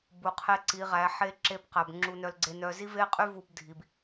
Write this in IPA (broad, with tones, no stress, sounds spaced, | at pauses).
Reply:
b u˨ qʰ e˦ ǀ i˨˦ ʁ æ˨˦ ħ e˦ ǁ e˦ b q æ˨ b ŋ͡ǁ u˦ n œ˦ l ɡ͡ǀ e˦ n œ˦ z i˦ v e˦ qʼ y˦ v u˦ b dʱ i˨ b